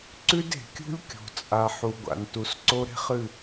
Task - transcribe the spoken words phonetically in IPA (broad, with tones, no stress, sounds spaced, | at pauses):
ǀ ʉ˦ d e̤˨ kʲ ṳ˦ lʲ kʲ o̤˨ t͡sʼ a˨ ħ u˨ ɡʷ a̰˨ n t u˨ s ǀ o˦ ɾ e̤˦ χ ɨ˦˨